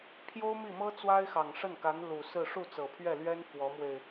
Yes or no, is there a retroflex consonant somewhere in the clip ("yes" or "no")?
yes